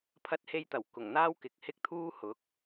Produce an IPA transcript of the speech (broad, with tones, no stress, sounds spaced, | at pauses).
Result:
pʰ ɐ˧ t̚ h e˧ j t̪ ɐ˨˩ w k ʊ˨˩ ŋ n̪ aː˥ w k ɪ˨ k̚ h ɪ˥ k̚ t̪ʰ uː˥ h ʊ˨˥ k̚